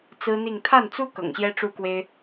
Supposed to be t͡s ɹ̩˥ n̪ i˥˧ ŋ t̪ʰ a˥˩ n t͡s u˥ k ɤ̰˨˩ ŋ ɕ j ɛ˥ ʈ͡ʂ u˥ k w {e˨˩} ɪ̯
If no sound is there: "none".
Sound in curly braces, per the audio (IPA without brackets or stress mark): e˥